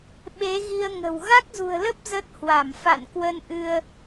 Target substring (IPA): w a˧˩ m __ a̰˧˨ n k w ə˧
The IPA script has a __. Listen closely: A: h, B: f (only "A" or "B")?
B